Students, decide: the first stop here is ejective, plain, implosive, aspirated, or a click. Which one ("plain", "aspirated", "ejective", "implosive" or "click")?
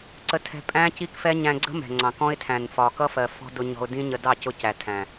click